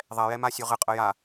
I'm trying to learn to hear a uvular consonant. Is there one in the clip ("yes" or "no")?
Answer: yes